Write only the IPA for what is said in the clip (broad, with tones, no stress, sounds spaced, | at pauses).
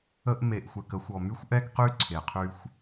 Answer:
ə˧ ʔ m e˨ ʔ xʷ ɛ˨ k ə˧ xʷ ɔ˨ m y˦ xʷ ʔ ɛ˦ ɡ q y˦ ǀʰ e˨ qʰ y˧ xʷ